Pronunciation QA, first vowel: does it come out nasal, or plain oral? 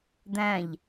nasal